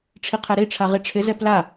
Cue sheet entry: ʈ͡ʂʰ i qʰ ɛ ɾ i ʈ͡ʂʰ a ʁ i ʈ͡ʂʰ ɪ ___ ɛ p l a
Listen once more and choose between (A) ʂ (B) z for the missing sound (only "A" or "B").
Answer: B